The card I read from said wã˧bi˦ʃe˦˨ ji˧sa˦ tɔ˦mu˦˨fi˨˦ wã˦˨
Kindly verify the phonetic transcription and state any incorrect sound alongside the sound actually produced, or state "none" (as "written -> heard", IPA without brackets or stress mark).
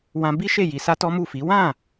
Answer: none